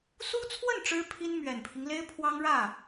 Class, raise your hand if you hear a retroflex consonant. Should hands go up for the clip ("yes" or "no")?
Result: yes